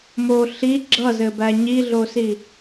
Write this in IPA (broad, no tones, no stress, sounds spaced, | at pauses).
m o ɬ i ɡ͡ǁ ʌ z ɘ b æ ɲ i ɮ o s i